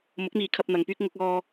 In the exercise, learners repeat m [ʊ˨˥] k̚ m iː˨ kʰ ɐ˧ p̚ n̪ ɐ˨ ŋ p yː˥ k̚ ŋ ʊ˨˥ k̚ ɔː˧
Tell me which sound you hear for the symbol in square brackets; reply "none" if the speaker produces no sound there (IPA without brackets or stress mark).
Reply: ʊ˨˥